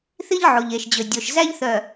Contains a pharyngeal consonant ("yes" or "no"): yes